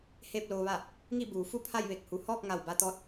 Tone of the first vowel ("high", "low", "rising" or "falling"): falling